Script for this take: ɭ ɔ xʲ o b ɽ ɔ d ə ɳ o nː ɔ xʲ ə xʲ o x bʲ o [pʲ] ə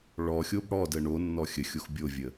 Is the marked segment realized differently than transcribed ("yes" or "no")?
yes